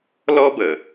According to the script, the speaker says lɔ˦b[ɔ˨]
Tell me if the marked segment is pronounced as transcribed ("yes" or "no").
no